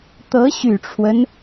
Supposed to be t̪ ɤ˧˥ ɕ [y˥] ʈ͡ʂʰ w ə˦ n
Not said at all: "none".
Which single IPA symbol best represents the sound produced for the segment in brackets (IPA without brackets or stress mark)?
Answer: y˨˩